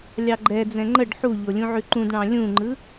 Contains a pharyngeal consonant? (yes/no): yes